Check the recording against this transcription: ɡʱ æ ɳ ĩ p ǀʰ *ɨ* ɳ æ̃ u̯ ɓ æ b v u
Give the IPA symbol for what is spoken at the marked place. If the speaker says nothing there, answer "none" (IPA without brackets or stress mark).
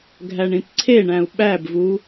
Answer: e